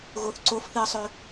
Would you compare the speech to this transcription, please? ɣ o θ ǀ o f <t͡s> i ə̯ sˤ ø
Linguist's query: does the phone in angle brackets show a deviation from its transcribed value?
yes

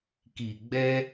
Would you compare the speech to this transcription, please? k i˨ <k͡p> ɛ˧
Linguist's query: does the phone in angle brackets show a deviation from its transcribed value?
yes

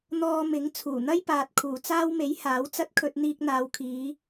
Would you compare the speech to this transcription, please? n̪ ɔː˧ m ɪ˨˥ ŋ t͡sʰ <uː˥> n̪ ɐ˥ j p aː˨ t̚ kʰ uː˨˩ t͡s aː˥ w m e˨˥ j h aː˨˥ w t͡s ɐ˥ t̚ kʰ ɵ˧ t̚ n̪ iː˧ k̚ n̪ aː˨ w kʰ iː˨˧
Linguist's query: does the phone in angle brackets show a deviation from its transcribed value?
yes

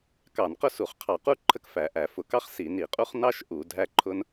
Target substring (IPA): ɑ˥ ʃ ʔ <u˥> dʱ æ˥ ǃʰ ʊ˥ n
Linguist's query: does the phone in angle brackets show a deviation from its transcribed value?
yes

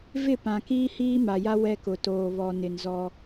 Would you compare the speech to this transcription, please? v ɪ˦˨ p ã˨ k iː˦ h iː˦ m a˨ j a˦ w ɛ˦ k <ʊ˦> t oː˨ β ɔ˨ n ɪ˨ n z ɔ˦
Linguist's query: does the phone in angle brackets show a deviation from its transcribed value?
yes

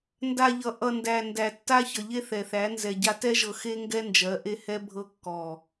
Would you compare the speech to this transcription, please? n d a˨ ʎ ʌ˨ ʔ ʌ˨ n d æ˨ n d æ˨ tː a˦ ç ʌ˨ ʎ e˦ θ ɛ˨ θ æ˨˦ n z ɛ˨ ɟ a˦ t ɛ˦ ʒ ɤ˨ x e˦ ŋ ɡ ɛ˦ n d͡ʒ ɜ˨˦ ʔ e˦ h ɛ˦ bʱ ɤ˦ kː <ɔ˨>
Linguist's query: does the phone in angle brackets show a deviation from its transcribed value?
no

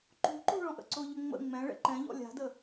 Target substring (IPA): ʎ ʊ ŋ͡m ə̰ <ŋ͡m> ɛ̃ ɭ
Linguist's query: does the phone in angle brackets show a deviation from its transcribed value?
no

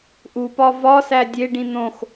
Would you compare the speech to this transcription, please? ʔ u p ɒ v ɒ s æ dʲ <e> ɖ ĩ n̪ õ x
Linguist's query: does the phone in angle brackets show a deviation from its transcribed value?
no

